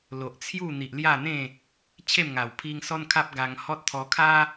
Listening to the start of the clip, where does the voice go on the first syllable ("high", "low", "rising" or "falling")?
low